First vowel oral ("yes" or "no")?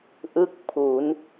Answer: yes